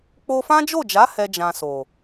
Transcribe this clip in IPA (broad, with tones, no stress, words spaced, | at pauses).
k͡po˧fã˦d͡ʒo˦˨d͡ʒa˨˦ hɛ˦d͡ʒã˧so˨